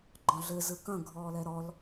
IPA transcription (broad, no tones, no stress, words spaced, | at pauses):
ɡ͡ǃɔ̃ɮɘ zɯkɐ̃ ɡʱɔːlɛɾɔl